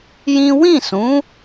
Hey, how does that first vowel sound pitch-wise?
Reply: high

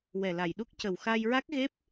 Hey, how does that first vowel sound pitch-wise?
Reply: low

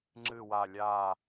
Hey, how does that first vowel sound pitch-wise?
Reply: low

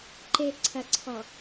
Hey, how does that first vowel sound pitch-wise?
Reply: low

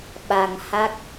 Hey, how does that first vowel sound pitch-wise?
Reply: low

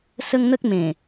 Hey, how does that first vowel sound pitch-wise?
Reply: high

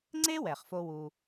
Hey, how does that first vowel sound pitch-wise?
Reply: high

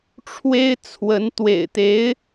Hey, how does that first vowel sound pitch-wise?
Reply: high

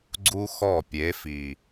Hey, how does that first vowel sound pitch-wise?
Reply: high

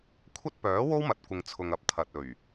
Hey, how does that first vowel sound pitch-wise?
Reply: high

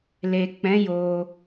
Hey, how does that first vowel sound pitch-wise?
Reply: low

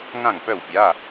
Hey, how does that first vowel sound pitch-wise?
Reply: falling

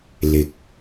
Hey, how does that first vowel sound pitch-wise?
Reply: rising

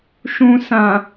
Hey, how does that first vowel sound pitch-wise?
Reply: low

